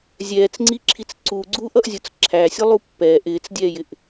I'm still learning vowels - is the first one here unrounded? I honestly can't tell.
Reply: yes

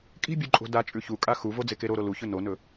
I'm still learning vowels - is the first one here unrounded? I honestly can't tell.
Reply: yes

